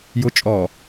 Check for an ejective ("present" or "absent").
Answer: present